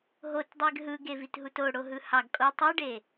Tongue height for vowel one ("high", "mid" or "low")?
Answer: mid